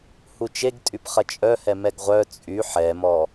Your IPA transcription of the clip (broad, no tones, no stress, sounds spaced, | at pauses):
h u t͡ʃ e ɡ tʼ y p χ ɐ t͡ʃʼ œ h ɛ m ɛ ɡ ʁʷ œ t͡sʼ y ħ ɛ m ɔ